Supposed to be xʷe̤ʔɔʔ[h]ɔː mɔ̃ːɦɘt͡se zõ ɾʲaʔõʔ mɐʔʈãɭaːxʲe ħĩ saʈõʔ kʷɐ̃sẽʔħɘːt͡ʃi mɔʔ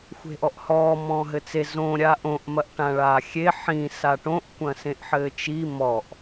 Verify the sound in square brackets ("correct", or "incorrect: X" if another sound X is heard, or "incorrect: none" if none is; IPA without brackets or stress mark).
correct